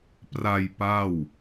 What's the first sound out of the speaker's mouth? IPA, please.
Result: p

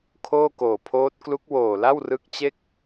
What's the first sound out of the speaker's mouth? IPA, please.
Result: kʰ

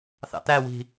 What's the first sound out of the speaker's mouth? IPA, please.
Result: θ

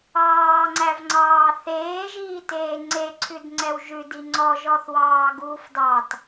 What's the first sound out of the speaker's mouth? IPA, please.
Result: ɑː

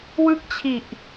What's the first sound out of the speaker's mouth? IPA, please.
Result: w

